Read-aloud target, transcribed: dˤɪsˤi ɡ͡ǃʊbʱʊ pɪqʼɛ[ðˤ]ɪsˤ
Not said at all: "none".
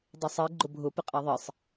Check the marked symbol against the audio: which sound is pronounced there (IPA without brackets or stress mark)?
ðˤ